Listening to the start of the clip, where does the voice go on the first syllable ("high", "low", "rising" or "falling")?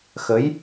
rising